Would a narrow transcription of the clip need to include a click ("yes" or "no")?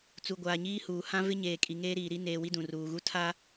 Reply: no